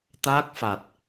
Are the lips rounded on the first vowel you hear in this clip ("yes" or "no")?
no